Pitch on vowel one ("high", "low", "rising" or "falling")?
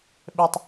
high